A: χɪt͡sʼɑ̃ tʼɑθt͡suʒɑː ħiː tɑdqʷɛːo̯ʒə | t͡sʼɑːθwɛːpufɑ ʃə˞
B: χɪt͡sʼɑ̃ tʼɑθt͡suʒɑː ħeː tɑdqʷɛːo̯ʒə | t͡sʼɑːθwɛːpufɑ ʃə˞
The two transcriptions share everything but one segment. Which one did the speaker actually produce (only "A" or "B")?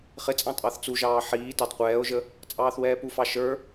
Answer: A